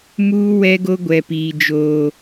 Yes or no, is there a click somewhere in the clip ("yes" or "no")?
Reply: no